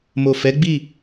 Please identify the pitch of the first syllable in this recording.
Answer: low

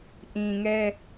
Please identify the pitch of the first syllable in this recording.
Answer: low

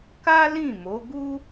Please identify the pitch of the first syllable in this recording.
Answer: high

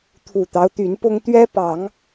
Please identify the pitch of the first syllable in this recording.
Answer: low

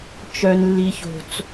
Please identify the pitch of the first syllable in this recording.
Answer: low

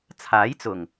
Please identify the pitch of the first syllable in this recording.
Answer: rising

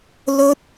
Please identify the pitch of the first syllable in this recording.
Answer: high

